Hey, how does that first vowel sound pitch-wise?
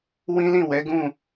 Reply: high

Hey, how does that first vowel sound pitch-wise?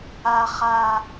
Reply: low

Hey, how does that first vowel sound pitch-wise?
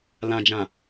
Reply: low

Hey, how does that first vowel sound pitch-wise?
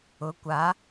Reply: rising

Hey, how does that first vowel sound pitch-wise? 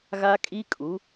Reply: high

